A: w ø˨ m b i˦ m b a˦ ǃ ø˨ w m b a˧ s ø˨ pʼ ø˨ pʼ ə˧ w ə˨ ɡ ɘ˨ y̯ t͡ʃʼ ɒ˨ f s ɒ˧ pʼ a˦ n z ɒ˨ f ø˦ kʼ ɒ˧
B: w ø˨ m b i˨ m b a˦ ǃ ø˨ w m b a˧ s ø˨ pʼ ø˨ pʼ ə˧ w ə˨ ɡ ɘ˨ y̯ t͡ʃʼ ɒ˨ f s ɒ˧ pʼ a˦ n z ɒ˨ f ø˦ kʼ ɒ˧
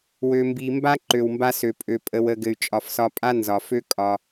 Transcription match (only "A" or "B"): B